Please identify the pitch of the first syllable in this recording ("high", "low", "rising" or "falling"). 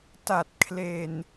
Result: low